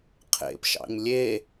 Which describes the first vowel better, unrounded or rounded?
unrounded